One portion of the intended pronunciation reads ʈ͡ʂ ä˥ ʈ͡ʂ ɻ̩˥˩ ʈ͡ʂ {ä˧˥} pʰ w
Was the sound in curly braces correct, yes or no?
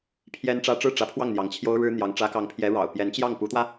yes